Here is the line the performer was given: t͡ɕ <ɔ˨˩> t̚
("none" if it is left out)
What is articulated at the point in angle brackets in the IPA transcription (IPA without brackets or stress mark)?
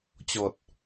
ɔ˨˩